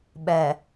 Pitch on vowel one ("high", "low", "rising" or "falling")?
low